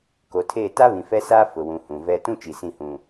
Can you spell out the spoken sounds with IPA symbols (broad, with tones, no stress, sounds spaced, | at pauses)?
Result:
k o˨ tʰ eː˦˨ t a˦ β ĩ˨ f ɛ˦ s aː˦ f ʊ˨ w ũ˨ h ũ˨ v ɛ˦ t ũ˦ t͡ʃ i˨ s ĩ˦˨ h ũ˨